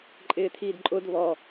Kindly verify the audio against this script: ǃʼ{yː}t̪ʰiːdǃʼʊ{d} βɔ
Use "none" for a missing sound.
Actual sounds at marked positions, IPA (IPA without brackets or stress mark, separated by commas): ɪː, d